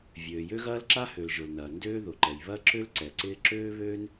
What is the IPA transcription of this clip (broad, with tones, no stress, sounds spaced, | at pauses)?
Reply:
vʲ øː˩ j ø˥ ɣ ɐː˥ l ǁ a˥ h ø˩ l ʒ ʊ˩ l n ɐː˩ n d øː˥ ð ʊ˩ ǃ ɛ˩ j β ɐ˥ ǁ ø˥ l ǀ ɛ˩ ǀ ɪː˥ ǁ øː˥ β øː˥ n